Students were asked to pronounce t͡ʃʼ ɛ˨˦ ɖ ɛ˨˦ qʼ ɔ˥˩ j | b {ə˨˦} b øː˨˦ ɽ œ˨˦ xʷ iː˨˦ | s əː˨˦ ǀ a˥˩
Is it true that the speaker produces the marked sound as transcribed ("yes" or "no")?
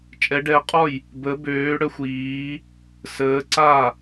yes